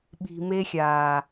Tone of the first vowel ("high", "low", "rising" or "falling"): low